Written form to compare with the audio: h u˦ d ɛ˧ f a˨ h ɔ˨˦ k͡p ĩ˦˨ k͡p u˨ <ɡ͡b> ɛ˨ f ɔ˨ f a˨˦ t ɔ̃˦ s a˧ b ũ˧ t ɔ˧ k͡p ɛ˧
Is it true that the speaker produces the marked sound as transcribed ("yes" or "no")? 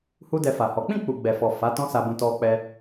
yes